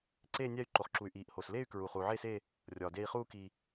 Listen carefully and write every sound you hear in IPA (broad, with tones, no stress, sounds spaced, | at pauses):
ǀ eː˥˧ nʲ æ˥˧ y̯ ǃ o˨ χ ǁ u˨ y̯ ʔ iː˨ ʔ h oː˨ s l eː˥˧ y̯ k ɹ uː˨ χ uː˨ ʕ eː˥˧ s eː˥˧ | rʲ ɒː˨ d e˥˧ i̯ χ uː˥˧ k i˨